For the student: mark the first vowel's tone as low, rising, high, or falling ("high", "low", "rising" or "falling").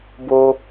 high